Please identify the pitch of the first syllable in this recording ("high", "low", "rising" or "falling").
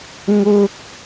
high